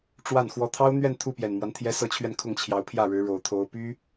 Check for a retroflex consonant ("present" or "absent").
present